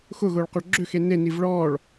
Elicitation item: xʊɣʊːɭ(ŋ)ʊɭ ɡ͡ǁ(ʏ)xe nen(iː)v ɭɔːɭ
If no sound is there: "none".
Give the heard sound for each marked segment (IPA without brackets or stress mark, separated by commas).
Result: q, ʏ, i